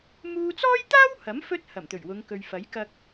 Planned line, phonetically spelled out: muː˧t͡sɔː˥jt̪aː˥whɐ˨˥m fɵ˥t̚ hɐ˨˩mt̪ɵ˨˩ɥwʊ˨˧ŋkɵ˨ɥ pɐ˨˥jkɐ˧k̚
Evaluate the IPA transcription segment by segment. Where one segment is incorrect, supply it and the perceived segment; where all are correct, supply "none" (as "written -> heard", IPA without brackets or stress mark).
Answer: p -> f